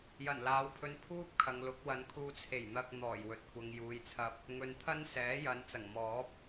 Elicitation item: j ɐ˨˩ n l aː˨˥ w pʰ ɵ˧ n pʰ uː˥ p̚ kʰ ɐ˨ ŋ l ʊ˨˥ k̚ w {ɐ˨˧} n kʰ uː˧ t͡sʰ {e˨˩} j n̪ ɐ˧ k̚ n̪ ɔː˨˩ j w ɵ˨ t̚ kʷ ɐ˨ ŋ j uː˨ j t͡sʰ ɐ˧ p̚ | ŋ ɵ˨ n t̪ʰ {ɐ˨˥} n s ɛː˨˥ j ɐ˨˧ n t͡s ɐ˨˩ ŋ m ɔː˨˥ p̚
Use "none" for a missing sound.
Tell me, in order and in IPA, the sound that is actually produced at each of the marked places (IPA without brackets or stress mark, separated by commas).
ɐ˨˧, e˨˩, ɐ˥